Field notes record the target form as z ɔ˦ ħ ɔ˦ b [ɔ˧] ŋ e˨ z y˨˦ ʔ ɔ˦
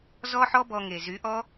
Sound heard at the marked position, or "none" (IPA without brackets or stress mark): ɔ˧